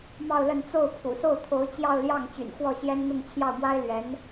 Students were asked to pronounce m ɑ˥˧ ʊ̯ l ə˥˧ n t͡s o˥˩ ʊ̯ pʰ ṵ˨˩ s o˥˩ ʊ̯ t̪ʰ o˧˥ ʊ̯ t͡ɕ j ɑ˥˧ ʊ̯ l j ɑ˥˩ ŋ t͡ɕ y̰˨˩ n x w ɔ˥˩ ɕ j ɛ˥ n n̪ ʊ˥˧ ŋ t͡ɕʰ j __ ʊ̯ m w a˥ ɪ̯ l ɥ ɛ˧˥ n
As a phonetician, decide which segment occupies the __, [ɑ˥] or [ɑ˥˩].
ɑ˥˩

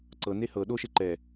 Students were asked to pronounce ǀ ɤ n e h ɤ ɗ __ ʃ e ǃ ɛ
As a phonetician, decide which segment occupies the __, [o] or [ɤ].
o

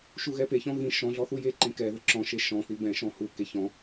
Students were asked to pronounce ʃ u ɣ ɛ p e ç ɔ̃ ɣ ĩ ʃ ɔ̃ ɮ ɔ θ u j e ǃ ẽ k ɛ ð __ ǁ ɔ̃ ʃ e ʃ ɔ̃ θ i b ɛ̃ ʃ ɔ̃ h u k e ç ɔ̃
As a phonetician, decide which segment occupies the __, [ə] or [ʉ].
ə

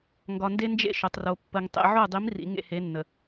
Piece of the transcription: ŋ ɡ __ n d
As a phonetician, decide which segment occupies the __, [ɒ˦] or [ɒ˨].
ɒ˨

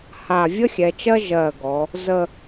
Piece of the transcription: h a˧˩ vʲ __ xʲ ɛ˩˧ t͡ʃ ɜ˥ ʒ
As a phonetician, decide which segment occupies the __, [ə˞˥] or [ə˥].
ə˥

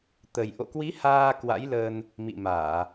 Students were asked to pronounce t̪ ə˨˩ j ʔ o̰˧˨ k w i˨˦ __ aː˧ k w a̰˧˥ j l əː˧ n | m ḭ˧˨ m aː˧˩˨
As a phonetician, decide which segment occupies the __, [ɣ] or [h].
h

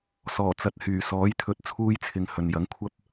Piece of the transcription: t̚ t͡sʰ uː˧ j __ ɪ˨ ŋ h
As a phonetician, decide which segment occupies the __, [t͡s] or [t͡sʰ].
t͡sʰ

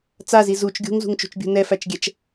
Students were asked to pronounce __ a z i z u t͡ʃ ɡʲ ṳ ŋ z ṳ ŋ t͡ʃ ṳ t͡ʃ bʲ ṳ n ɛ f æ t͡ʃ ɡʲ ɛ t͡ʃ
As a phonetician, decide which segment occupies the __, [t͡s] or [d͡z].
t͡s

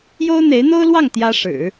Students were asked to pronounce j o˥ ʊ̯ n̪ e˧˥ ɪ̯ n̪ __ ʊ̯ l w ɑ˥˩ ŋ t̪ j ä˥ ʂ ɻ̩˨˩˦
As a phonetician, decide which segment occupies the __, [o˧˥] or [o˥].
o˥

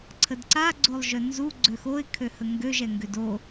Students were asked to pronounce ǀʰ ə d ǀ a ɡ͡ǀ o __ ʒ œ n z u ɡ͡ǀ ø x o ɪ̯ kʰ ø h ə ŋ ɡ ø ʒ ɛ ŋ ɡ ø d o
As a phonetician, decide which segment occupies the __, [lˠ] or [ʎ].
lˠ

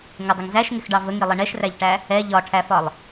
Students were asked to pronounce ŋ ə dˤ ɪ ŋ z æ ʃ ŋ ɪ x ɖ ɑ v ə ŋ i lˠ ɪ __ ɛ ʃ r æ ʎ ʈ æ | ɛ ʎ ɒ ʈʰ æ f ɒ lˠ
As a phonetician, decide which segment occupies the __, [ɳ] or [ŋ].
ɳ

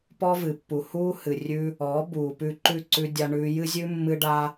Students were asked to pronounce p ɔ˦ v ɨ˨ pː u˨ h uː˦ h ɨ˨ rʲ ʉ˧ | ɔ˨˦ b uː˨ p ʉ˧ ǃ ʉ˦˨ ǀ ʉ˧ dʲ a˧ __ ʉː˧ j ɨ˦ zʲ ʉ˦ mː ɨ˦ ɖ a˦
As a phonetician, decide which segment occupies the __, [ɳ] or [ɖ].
ɳ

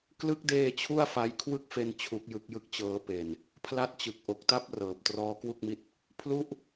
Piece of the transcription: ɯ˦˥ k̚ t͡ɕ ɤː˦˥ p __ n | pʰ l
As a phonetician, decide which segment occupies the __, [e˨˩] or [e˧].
e˨˩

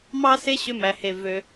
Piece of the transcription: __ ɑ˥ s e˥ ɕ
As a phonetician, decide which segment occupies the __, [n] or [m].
m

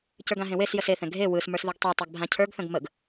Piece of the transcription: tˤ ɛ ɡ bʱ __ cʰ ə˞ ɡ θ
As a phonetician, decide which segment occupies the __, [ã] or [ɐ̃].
ã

